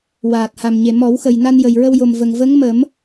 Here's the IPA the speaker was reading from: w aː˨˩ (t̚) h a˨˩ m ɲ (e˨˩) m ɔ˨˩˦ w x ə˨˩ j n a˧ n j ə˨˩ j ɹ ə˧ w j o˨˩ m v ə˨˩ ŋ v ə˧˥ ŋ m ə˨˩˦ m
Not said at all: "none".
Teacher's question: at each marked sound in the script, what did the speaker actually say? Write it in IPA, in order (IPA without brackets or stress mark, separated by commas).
t̚, e˨˩